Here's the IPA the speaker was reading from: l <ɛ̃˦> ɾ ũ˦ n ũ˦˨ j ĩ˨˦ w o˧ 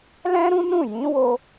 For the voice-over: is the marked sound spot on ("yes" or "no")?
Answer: yes